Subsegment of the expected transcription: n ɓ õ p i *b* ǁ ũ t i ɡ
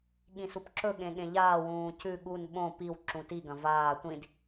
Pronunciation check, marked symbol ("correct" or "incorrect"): incorrect